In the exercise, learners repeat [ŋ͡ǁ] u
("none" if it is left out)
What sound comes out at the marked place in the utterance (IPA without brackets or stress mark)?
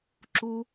ǁ